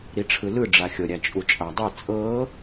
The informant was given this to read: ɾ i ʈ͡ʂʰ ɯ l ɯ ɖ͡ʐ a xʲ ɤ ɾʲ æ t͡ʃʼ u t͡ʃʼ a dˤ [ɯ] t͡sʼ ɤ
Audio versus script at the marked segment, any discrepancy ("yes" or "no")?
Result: no